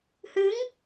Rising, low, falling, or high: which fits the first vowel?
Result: rising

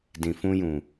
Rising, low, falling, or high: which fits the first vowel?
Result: low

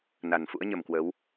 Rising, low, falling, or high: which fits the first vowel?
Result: low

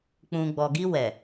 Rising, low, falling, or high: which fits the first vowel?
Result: low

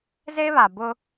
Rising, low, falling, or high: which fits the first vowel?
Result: high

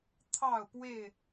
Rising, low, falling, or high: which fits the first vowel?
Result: falling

